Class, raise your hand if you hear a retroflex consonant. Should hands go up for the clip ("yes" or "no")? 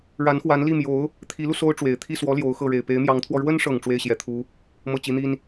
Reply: yes